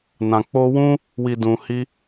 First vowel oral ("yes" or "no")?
no